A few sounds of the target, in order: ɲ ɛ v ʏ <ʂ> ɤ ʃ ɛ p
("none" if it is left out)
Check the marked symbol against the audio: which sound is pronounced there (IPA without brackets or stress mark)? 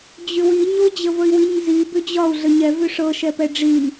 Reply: ʂ